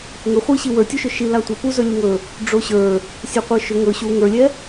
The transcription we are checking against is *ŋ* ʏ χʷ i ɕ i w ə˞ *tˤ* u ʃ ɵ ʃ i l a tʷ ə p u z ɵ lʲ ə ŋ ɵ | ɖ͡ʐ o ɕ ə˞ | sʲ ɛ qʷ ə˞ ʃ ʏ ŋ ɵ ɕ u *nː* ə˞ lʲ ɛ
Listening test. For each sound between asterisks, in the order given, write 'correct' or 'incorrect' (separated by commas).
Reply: correct, incorrect, incorrect